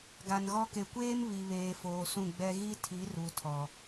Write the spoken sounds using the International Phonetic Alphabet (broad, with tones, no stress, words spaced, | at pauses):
ɡa˨nɣɔ˦ ke˨kʷeː˦m βi˨βeː˨foː˨ sũ˦˨ɡ͡bɛ˦ ɣi˦tʰi˨˦ru˨tʰɔ˨